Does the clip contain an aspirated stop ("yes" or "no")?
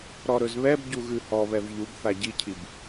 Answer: yes